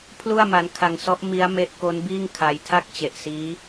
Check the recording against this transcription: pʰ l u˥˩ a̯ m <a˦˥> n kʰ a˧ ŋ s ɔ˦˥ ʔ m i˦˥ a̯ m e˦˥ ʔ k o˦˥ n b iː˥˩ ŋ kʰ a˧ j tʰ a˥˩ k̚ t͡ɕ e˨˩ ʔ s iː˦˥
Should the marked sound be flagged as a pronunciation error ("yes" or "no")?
no